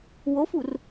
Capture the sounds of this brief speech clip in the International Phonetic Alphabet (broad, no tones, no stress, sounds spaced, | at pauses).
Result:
w o f u r